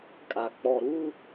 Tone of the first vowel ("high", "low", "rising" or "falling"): low